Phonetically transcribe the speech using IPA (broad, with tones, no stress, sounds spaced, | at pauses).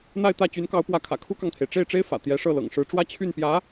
n̪ a˥˧ ɪ̯ t̪ ä˥˩ t͡ɕ y˧˥ n k ɑ˧˥ ʊ̯ p w ä˧˥ kʰ ä̰˨˩ kʰ u˥ k ɑ˨ ŋ t̪ʰ e˩ ɪ̯ ʈ͡ʂ e˥˩ ɪ̯ ʈ͡ʂ e˥ ɪ̯ f ä̰˨˩ t̪ j ɛ˧˥ ʂ ɤ˥˩ l ɤ̰˨˩ ŋ ʂ ɻ̩˧˥ ʈ͡ʂ w ä˥ t͡ɕʰ y˥˩ n p j ä˧˥